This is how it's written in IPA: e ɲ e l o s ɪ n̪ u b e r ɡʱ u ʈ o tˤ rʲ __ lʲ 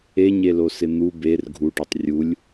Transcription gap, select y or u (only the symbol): u